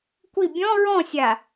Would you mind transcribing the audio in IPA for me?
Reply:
kʷ i bʲ ɔ̃ ɹ ɔ̃ sʲ a

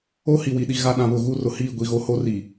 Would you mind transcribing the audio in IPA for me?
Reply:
o˦ h i˨ w i˨ ɗ i˨ ɣ a˦ ɗ ã˨ β ʊ˦˨ ɣ u˦ r ʊ˨ h iː˦˨ ɡʷ i˨ ɣ o˦ h o˦ r iː˨

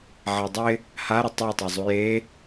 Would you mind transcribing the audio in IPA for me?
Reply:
ʕ a dˤ ɪ | h a ɾ ə tˤ u tˤ a zˤ u j e

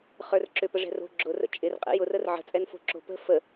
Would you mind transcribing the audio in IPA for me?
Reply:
χ ə˞ r ǁ ʏ p ə ʐ ɛ̤ r o̤ ɡ͡ǁ ʊ r ə̰ t͡ʃʼ ɪ r qʼ ɛ̰ j ʊ r ə r ʕ ə̤ t͡sʼ ɛ n f o̤ ǁ o̤ p ə̤ f ə

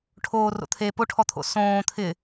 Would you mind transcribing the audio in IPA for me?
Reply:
ʈʰ oː r o̰ t̪ʰ e p o ʈʰ ɔ t̪ʰ o̰ s õː t̪ʰ ɪ

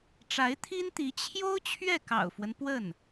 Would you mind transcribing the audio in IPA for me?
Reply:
ʈ͡ʂ a˧˥ ɪ̯ t̪ʰ i˥ n t̪ i˧˥ t͡ɕʰ j o˥ ʊ̯ t͡ɕʰ ɥ ɛ˥˩ k ɑ̰˨˩ ʊ̯ f w ə˦ n p w ə˥˩ n

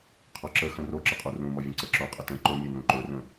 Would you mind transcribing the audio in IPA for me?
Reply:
qʰ ɔ ǁ ə x ə̃ r o ǁ ə qʼ u r ũ m ɔ vʲ ə̃ ǀ ə ǁ o qʼ ə t ə̃ ǃ ʊ mʲ ɵ n ũ ǃ ɵ r ə̃

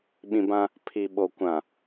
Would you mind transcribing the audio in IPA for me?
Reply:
ɓ ĩ˨ b ã˦ | pʰ i˨ ɓ o˨ kʷ ã˨

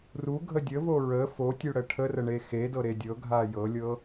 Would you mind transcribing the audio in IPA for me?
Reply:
r u ɡʱ ə dʲ ə v o ɹ ə f o tʲ u ɽ ə ʈʰ ə r ə ɳ e x e d ɤ ɾ e dʲ ɤ ɡʱ a j ɤ lʲ ɤ

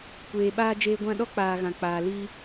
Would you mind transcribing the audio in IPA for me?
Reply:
kʷ eː˨ ɓ aː˧ d͡ʒ eː˧ ɡʷ ã˦˨ ɗ ɔ˦ k͡p aː˨ ɣ ã˨ k͡p aː˨ l i˧

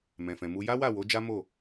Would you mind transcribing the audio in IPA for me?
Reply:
m ɛ̃˨ f ɛ̃˨ m u˧ j a˦ w a˦˨ w o˨˦ d͡ʒ a˦ m o˦˨

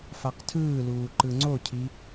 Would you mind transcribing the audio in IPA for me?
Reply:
f a q tʰ ɯː l uː ǃ ɯ ŋ͡ǀ o cʰ i

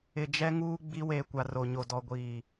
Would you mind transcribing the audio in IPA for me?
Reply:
ɪ˨ d͡ʒ ɛ˦ ŋ uː˦ ɡ͡b i˦ w eː˨ kʷ a˨ r o˨ ɲ o˨ d ɔ˨ ɡʷ iː˨

